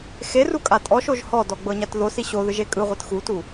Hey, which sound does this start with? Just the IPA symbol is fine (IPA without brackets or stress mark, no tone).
x